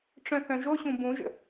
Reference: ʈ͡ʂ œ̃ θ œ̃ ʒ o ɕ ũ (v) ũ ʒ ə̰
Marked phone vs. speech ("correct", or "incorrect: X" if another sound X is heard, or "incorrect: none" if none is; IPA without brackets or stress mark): incorrect: b